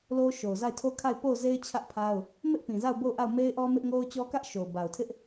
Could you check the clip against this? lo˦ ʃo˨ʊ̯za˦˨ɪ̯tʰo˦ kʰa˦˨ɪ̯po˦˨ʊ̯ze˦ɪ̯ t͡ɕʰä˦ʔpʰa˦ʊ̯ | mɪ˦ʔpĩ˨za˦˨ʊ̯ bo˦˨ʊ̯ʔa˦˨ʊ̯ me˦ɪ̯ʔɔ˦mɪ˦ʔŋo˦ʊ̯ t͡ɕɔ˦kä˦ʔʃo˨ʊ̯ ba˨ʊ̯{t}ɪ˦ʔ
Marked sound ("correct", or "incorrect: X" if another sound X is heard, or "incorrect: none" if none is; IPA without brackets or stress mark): incorrect: tʰ